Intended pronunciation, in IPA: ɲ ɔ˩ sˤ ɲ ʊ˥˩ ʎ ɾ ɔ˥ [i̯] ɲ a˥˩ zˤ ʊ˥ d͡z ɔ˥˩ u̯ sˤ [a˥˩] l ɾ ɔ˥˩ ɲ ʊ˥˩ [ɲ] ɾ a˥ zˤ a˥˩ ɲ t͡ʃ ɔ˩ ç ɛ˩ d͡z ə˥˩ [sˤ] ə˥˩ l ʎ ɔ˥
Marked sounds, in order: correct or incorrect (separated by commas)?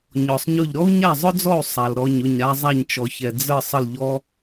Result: incorrect, incorrect, correct, correct